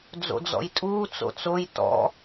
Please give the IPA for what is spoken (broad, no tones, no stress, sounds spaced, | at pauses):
d͡z o̰ d͡z ɔ̰ j tʼ uː t͡s o̰ t͡s o j t ɔ̰